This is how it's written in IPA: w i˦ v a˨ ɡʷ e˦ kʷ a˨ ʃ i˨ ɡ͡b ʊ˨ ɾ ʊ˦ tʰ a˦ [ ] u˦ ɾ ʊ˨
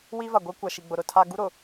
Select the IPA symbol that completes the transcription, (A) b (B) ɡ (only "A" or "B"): B